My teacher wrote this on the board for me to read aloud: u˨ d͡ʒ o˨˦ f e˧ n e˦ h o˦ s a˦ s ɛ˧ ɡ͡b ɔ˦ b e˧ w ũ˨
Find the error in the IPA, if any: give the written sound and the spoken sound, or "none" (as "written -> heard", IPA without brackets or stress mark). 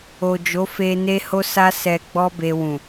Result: u˨ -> o˨